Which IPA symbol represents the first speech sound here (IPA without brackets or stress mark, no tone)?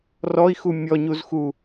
r